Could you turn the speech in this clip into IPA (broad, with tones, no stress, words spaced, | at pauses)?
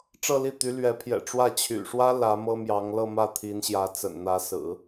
ʈ͡ʂɤ˥˧li˥˩t̪y˧˥ lɥɛ˧˥ pʰjɛ̰˨˩ʈ͡ʂwä˥˩ t͡ɕʰy̰˨˩ ʂwä˥ lä˧˥mɤ˥mjɑ˧˥ŋ lɤ˥˧mä˥˩ t̪ʰi˧˥nɕjä˧˥ t͡sə̰˨˩nn̪ä˧˥ sɹ̩˨˩˦